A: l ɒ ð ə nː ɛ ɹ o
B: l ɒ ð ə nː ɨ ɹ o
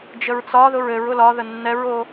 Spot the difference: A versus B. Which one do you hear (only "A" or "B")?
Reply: A